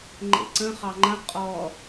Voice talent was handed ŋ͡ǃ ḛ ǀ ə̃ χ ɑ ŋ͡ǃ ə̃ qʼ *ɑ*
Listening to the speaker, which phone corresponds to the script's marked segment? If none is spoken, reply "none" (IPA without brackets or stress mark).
ɔ